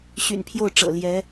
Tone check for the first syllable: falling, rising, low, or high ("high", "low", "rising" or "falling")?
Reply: low